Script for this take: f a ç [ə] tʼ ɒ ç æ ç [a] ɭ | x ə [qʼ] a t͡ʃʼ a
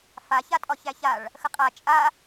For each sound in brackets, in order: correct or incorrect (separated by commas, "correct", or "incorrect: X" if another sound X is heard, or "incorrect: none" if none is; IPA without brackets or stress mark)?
incorrect: a, correct, correct